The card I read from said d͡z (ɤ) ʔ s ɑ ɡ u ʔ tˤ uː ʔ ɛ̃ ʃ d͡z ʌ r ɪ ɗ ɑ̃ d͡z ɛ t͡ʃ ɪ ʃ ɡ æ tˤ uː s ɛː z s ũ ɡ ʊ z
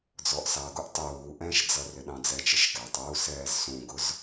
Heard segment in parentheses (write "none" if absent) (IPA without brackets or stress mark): ɔ